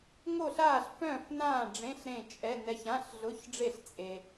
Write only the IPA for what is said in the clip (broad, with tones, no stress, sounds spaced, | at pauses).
ŋ o˥˨ ɬ aː˥˨ ɬ f œ̃ː˥˨ f n ãː˥˨ ɖ͡ʐ ẽ˧˥˧ ɬ ɾ ẽ˥˨ t͡ʃʼ ɛ˧˥˧ n ɛ˧ ç ã˧˥˧ ɬ ɮ ʊ˧˥˧ ç ɖ͡ʐ e˥˨ ɬ t͡sʼ e˧